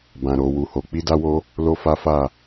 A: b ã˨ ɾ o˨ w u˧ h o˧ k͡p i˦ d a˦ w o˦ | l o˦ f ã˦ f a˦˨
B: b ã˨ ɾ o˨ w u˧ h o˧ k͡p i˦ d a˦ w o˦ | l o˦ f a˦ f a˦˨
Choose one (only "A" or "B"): B